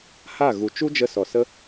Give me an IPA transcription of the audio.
h a˦˨ ɣ u˨ t͡ʃ u˦ d͡ʒ ə˧ s ɔ˨ s ə˦

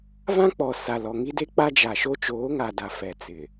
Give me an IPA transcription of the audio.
v ã˦ k͡p ɔ˨ s a˨ l ɔ˨ ŋ i˦ d e˦ k͡p a˦ d͡ʒ a˨ ʃ o˦ t͡ʃ oː˨˦ ŋ a˨ d a˨ f ɛ˨ t͡s ɪ˨

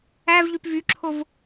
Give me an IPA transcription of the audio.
æ v ʎ y p v y ǁʰ o v

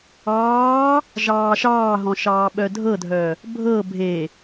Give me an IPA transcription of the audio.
ɑː | ʒ ɑː ʃ ɑː ɦ ɔ̃ ʃ ɑː ɓ œ dʱ ɤ dʱ œ | bʱ ɤ bʱ e

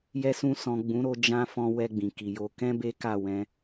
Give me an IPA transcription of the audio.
j ɛ˧ s ũ˧ s ɔ̃˨ ɡ͡b ũ˨˦ ɾ o˧ d͡ʒ ã˦ f ɔ̃˧ w ɛ˧ ɡ͡b ĩ˨ k i˨ j o˧ k ɛ̃˦ b e˦ k a˦˨ w ɛ̃˧

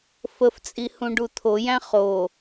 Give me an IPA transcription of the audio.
f ə f t͡sʼ i h ũ ɖ u t̪ʰ o j æ̃ χ o

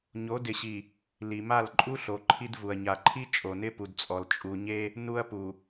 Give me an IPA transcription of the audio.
ɲ o˨˦ d ɪ˨ ɕ i˨ | l i˨ m a˦˨ l ǃʼ u˦ ɬ o˨ ǃʰ i˦ d v u˨ ɐ̯ ɲ a˨ ǃʰ i˦ t͡ʃʼ o˨ n ɪ˦ p u˨ d t͡sʼ ɔ˨ l t͡ʃʼ u˨ ɲ e˦ | n u˦ ɐ̯ p u˨

